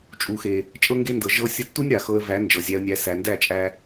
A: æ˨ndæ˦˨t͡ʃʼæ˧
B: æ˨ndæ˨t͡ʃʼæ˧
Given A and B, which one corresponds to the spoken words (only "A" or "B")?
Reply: A